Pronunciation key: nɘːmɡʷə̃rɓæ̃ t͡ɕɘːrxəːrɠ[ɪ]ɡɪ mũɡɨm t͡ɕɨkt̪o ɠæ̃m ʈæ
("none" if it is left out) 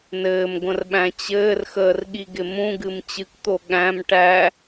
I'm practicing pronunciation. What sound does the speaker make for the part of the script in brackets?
i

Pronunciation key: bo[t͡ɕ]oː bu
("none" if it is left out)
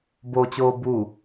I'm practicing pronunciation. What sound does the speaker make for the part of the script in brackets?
t͡ɕ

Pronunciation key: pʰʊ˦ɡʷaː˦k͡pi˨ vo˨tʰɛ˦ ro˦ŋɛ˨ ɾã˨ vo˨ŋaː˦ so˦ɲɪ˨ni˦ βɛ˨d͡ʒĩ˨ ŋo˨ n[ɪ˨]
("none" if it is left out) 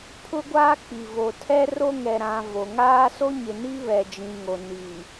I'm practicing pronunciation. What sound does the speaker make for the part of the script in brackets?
i˨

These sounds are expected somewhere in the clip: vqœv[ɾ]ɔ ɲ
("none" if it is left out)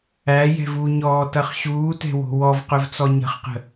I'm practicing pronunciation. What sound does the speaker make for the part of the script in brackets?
t͡s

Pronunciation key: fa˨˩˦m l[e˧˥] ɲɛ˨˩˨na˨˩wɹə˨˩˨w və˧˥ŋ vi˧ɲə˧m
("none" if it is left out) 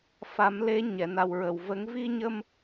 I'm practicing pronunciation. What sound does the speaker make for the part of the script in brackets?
e˧˥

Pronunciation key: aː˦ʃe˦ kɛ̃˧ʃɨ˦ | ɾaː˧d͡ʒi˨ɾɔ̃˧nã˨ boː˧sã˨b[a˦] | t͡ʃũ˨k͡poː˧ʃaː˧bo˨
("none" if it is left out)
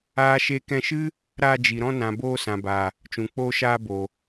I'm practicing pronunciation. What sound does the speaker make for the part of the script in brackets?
a˨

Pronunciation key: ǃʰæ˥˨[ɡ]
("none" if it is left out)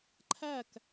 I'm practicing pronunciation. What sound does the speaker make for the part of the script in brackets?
k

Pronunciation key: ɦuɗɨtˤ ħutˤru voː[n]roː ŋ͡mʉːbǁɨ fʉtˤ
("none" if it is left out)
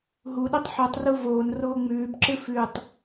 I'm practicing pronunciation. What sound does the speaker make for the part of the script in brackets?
n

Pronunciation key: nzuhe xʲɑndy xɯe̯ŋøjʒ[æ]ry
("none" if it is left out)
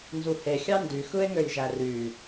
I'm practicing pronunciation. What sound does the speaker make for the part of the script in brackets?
æ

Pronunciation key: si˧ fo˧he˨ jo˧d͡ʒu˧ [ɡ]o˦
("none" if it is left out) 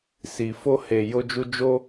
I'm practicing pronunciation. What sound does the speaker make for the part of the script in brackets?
d͡ʒ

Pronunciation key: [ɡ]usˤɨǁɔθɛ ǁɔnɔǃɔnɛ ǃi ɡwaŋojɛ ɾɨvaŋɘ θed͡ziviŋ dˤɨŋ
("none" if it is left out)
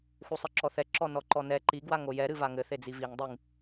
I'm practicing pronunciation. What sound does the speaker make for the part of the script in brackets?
x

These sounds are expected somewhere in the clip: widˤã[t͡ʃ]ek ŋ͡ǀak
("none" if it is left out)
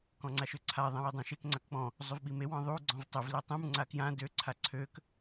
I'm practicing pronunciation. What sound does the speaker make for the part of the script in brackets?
ʃ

